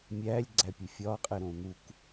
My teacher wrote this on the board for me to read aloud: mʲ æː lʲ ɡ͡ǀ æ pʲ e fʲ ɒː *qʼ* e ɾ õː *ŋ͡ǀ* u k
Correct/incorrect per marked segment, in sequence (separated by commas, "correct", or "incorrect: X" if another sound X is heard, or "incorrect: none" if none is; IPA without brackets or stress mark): correct, incorrect: n̪